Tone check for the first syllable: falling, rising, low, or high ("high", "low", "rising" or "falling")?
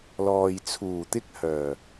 low